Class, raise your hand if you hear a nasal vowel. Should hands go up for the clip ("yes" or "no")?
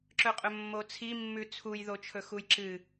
no